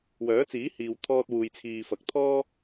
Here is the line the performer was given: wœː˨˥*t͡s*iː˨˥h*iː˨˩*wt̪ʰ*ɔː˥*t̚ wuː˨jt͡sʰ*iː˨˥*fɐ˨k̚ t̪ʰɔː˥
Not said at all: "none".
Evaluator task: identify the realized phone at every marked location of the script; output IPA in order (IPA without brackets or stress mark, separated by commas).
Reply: t͡s, iː˨, ɔː˧, iː˨